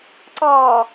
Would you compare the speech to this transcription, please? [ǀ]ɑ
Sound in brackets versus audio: correct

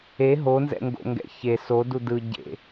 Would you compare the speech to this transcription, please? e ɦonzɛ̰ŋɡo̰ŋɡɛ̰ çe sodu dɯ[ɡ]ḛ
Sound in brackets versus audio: incorrect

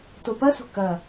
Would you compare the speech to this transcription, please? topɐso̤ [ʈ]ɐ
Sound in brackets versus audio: incorrect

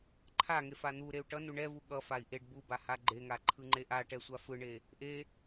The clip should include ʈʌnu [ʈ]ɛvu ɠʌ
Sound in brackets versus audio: incorrect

